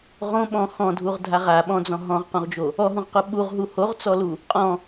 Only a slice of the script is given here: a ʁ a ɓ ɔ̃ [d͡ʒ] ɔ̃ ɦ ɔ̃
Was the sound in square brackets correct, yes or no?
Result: no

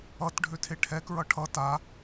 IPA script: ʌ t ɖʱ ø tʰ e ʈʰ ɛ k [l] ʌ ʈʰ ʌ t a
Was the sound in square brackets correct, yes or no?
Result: no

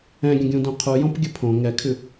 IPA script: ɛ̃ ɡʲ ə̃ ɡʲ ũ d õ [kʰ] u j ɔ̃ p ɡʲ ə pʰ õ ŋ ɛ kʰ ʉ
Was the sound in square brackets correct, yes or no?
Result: no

